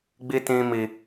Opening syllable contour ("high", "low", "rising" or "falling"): high